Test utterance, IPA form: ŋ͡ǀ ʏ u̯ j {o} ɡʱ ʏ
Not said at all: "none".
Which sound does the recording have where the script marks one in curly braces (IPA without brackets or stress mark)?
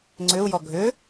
ɔ